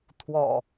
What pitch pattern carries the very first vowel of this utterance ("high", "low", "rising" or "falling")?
low